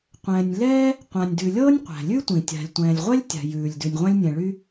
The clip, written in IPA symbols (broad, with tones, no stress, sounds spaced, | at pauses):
qʷ ɛ̃ː˩ nʲ l ɛː˥ | qʷ ã˩ nʲ d ʉ˩ lʲ ɤː˥ nʲ qʷ æ̤˩ lʲ ʉ˥ tʷ ĩ˩ tʲ a̤˩ lʲ tʷ ɛ̃ː˩ lʲ ʁʷ ɛ˥ lʲ tʲ a̤˩ j ʉː˩ lʲ d ʉ˩ nʲ ʁʷ ã˥ lʲ nʲ ɛ̃˩ ɭ y˥